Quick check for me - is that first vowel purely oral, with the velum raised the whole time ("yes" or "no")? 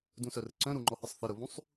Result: no